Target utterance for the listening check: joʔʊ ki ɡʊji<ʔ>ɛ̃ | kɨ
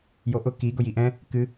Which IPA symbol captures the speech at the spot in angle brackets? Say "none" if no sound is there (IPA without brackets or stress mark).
ʔ